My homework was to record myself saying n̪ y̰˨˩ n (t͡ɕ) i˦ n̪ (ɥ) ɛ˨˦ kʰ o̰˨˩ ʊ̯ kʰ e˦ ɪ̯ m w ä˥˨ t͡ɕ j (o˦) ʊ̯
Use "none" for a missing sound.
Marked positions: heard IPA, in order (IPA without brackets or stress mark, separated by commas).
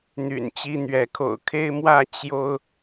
t͡ɕ, ɥ, o˦